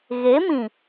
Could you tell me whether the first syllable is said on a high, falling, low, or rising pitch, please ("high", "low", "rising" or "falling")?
rising